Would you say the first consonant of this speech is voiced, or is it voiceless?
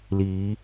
voiced